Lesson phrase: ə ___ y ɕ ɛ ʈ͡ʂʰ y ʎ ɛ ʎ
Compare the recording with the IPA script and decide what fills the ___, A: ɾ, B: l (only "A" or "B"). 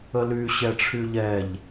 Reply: B